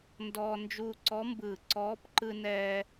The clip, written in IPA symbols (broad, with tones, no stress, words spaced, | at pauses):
ndɔː˧ nd͡ʒuː˧ǀɔ˧˥mbɯː˧˩ ǀɔː˧˥p ǃɯ˧nɛː˧